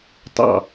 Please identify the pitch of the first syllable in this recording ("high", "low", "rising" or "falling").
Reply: falling